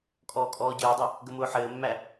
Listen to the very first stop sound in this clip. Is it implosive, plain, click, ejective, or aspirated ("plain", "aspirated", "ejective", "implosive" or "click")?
ejective